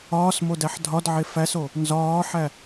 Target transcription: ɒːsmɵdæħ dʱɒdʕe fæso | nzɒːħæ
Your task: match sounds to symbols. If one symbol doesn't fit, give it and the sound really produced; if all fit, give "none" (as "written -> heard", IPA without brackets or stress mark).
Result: ɵ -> o